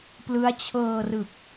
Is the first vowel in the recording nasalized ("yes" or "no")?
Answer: no